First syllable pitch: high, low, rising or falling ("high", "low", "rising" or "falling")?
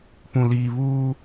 low